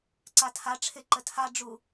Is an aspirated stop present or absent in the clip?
present